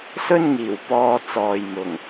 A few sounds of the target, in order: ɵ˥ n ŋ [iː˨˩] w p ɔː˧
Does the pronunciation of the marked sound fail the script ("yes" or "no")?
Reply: no